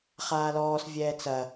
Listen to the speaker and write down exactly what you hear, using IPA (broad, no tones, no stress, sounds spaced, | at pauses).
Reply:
χ aː l ɔː s vʲ ɛː t͡s ɐ